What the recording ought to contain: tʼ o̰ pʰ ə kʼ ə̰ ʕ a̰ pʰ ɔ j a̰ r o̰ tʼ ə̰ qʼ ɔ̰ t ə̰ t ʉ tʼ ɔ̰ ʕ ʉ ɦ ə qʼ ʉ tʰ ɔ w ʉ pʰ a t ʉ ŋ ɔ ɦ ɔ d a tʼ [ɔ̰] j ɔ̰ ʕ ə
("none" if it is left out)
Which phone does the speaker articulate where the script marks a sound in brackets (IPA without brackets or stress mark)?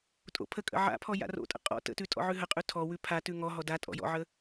ɔ̰